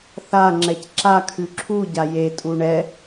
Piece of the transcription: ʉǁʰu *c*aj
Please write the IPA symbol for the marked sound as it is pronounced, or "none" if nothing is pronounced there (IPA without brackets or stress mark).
ɟ